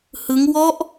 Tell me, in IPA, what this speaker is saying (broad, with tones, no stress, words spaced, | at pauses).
hɯ˦˥ŋ wɔ˦˥ʔ